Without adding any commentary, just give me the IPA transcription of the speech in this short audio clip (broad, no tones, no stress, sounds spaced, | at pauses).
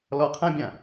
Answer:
l ɔ qʰ ã bʲ ã